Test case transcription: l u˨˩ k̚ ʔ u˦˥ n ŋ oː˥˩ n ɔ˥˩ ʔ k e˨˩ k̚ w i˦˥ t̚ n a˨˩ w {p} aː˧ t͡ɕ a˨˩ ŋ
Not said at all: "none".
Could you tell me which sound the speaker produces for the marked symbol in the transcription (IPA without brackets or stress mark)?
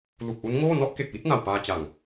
p